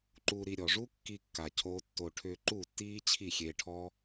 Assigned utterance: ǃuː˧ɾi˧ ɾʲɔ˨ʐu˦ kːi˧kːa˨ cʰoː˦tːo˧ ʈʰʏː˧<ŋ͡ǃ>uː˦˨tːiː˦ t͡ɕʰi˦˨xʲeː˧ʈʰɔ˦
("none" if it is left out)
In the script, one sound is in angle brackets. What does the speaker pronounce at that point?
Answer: ǃ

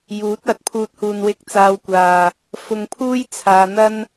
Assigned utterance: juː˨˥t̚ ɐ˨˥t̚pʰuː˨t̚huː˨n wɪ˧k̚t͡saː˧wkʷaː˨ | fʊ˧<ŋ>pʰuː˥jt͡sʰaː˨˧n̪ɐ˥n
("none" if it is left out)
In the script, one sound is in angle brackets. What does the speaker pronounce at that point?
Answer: ŋ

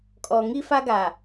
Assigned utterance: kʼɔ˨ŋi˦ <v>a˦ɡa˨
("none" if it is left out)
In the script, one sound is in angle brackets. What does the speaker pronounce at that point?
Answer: f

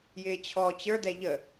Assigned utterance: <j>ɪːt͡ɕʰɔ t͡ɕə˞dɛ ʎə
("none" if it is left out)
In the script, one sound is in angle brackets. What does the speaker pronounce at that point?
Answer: j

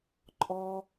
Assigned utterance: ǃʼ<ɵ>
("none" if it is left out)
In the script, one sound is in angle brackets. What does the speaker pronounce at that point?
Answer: ɔ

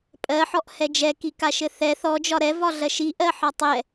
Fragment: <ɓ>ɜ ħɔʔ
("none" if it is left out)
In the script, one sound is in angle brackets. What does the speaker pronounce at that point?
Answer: pʼ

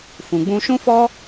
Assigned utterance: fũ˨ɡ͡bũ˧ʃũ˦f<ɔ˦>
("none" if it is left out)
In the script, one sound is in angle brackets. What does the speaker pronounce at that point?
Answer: ɔ˦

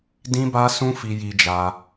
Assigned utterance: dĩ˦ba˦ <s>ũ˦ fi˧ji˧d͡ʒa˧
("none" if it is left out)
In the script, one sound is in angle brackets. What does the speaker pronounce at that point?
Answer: s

